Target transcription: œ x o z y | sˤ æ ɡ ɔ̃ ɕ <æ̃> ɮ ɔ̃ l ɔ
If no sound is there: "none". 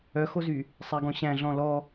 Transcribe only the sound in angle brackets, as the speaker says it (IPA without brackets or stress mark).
æ̃